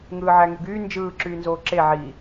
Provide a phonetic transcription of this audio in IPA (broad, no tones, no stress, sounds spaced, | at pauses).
ŋ ɯː ʕ æ ŋ y ɡ yː n d͡ʒ ɯː ǁ yː n z oː ǁ e ʕ i